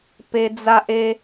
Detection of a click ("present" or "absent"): absent